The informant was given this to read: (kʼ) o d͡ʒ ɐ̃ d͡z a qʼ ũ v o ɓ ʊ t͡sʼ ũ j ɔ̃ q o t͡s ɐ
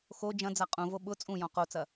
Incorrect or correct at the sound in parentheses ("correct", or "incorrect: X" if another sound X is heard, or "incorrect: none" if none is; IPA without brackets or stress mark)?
incorrect: x